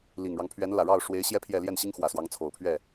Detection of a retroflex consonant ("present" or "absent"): present